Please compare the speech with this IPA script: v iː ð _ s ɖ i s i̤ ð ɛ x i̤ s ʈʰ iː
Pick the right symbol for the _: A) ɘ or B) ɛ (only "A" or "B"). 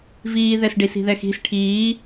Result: B